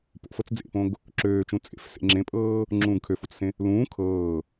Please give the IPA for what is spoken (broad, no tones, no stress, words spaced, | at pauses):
po̰ fɤt͡sd͡zḛpõɡ | ǁøːt͡ʃũ t͡sʼḛf sḛŋ͡ǁẽpʼɤː | ŋ͡ǁũːɡkʰøfut͡ssẽ | lũː kʰɤː